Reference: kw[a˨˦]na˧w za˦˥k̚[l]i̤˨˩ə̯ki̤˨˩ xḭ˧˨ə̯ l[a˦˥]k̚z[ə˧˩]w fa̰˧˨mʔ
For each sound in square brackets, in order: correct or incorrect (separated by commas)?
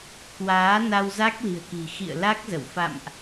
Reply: incorrect, correct, correct, correct